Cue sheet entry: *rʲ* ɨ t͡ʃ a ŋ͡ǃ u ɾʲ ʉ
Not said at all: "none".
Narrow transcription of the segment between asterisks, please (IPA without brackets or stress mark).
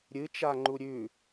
ɾʲ